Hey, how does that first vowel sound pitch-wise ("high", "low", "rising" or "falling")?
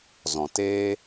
low